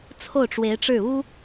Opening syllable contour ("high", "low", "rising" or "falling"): falling